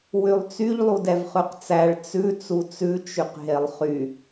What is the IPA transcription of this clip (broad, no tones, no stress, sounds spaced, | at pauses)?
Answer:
w y lˠ t͡s y ʎ lˠ u d ɛ v χ ʉ q t͡s æ ɭ t͡s ʉ t͡s u t͡s ʉ t͡ʃ y q ɦ e lˠ χ y